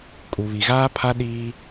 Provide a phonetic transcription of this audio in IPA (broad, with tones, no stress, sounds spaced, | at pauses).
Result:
kʼ u˨ β i˨ ɣ aː˦ pʰ a˦ ɗ iː˦